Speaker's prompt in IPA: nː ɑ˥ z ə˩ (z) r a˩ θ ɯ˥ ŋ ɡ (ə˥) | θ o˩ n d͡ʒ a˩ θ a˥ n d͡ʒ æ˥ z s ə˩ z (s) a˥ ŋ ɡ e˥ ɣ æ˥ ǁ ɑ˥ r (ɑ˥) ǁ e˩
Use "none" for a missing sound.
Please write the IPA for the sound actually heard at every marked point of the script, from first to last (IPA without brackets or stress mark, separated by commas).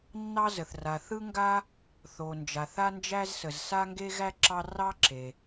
θ, a˥, s, ɑ˥